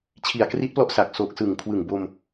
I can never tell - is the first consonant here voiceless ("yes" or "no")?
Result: yes